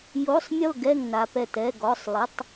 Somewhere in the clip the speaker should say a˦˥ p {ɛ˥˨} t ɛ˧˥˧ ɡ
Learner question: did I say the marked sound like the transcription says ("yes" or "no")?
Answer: yes